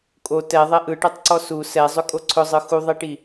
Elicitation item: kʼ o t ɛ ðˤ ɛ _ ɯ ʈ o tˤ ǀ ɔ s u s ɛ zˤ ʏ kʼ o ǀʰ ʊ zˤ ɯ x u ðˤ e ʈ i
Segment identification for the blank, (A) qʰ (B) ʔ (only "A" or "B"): B